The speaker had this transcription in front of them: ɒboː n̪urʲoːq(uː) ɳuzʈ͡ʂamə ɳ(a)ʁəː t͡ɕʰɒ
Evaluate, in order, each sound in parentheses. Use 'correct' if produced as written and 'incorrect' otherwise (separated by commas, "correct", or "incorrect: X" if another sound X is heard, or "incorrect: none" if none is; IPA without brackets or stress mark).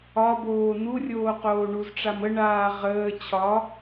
incorrect: oː, incorrect: aː